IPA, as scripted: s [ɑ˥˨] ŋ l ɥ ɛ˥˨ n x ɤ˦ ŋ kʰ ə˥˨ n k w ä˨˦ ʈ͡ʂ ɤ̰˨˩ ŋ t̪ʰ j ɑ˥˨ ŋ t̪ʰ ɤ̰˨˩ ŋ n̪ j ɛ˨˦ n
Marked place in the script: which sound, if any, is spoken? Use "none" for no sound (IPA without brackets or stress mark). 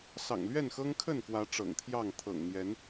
ɑ̰˨˩